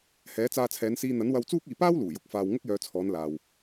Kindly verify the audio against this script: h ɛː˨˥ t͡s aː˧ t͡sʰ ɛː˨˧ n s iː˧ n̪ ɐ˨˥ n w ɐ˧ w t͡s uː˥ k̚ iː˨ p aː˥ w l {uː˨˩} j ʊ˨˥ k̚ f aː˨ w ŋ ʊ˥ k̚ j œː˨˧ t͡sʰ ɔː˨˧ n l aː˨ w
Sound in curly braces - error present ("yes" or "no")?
no